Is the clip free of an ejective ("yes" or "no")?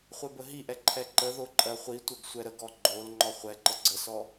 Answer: no